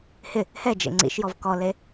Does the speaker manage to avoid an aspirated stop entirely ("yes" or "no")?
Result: yes